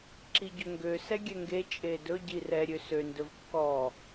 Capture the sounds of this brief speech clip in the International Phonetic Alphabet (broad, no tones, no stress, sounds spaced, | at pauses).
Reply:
ǁ i ɟ ɵ ŋ ɡ ø s ɛ ɡʲ ɛ ŋ ɡ e t͡ʃʼ e d ɵ ɟ i r ɛ ɾʲ ø s ø n d ɵ v kː ɔ